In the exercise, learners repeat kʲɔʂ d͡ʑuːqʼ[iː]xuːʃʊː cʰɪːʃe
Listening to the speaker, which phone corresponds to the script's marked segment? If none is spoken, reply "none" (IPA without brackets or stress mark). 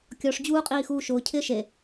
iː